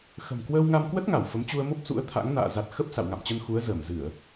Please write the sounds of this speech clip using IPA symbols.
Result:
x ə̤˨˩ m k w əː˧ w ŋ a˧ m k w ə˦˥ t̚ ŋ a˧˩ w f ə˨˦ m t͡ɕ u˧ ə̯ m o˦˥ p̚ s ṵ˧˥ ə̯ t̪ʰ a̰˧˥ ŋ n a̰ː˧˨ z a˨˩ t̚ x ə˦˥ p̚ s a̰˧˨ w ŋ a̰˧˨ m t͡ɕ ə˧ n x u˨˦ ə̯ z əː˧˩ m z ɨ˧˩˨ ə̯

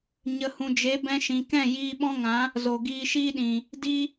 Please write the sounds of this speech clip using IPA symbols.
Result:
ɲ ə˨ h ũ˨ d͡ʒ e˨˦ b ɛ̃˧ ʃ ĩ˨ k ɛ̃˦˨ j iː˧ ɓ ɔ̃˦ ŋ ã˨˦ | z o˨ ɡ iː˧ ʃ iː˦ ɗ ĩ˨ | d i˧

